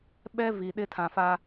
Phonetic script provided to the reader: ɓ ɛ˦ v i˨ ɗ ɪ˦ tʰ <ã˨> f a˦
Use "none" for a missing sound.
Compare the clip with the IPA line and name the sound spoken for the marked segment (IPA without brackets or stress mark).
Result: ã˨